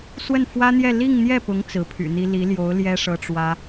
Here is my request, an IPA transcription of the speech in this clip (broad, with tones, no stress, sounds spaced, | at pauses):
s w ə˥˩ n f w ä˥ n̪ j ɛ˥˧ l i˥˧ ŋ n̪ j ɛ˥˩ p ʊ˧˥ ŋ t͡s ɹ̩˧˥ pʰ y̰˨˩ n̪ i˥ l i˧˥ l j o˧˥ ʊ̯ l j ɛ˥ ʂ ɤ˥ ʈ͡ʂ w ä˥